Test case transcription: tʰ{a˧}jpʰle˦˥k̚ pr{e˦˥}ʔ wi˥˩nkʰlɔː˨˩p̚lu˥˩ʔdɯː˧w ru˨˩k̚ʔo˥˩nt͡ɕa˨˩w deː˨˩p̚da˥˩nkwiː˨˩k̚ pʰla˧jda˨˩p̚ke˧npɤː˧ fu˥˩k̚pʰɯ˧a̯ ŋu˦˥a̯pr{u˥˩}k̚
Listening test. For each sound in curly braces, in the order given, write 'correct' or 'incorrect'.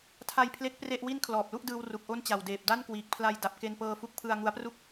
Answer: correct, incorrect: e˥˩, correct

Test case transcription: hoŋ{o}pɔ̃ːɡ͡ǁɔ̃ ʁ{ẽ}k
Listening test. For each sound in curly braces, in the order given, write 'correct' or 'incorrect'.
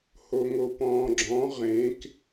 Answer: correct, correct

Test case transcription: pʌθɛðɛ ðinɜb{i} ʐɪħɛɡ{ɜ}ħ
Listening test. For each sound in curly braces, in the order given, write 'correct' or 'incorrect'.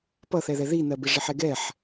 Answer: incorrect: ɪ, incorrect: ɛ

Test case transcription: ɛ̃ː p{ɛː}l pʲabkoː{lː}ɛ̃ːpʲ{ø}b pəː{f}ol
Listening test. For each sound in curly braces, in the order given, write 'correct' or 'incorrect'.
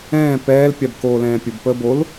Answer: correct, incorrect: l, incorrect: ə, incorrect: b

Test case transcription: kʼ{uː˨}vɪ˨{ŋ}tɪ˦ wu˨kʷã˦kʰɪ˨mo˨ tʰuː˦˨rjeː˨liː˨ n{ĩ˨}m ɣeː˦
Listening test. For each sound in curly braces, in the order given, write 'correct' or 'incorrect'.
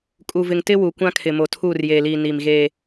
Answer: incorrect: u˨, correct, incorrect: i˨

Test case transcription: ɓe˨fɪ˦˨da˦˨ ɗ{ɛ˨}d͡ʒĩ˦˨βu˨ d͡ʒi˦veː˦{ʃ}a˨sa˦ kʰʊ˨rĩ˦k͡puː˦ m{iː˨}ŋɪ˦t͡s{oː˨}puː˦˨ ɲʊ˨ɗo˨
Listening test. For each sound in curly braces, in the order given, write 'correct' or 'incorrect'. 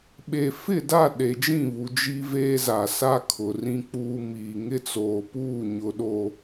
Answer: incorrect: e˨, incorrect: z, correct, correct

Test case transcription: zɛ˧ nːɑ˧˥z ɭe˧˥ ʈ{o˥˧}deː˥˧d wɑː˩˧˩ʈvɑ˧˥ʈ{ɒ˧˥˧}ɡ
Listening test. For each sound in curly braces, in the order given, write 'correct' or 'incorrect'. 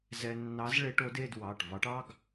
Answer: incorrect: o˧˥, incorrect: ɑ˧˥˧

